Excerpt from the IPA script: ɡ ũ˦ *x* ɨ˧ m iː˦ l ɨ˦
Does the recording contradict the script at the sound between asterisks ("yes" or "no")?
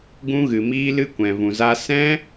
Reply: yes